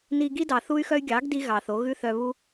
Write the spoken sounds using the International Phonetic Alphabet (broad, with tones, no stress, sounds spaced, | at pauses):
n i˧ ɡ i˦ d ɑ˨ θ u˦ y̯ x œ˦ y̯ ɡʲ ɑ˨˦ ɡ d i˦ ɣ ɑ˨ θ o˨˦ ɣ ʉ˦ θ œ˧ β u˦